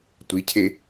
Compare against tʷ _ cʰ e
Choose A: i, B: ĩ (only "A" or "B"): A